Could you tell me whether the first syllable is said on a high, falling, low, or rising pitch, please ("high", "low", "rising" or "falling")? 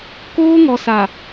high